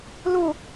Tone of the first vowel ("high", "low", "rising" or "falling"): falling